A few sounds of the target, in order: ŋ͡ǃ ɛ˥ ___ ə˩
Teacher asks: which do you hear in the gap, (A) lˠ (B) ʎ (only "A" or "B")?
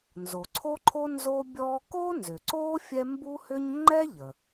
B